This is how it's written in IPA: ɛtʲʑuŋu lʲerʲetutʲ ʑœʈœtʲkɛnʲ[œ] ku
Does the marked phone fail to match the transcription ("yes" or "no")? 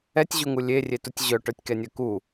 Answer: no